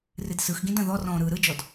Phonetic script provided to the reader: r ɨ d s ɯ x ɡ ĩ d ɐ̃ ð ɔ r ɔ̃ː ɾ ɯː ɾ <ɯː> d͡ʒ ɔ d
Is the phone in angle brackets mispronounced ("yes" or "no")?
yes